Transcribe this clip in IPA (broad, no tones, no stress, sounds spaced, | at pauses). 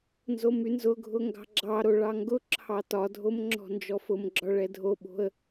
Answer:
n z o m y n z ʊ ɡʱ ʊ ŋ ɡ ɑ̤ ɡ͡ǁ ɑ ɾ o ɭ ɑ ŋ ɡ ʊ ǁʰ ɑ t ɒ dʱ o m ŋ͡ǁ ɔ̤ n d͡ʒ ɔ f ʊ m ɡ͡ǁ ɒ ɭ ɛ dʱ o ɓ o̤ ə̯